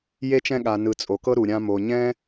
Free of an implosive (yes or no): no